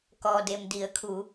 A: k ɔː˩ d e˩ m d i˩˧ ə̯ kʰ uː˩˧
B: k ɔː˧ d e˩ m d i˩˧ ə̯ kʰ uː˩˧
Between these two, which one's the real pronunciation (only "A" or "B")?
A